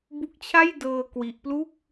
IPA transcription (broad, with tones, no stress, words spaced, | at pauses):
bu˦˥k̚t͡ɕʰa˥˩jdɤː˧ kwi˦˥ʔ plu˥˩k̚